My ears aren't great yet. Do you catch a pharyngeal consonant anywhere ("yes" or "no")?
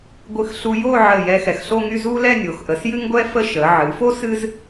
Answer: yes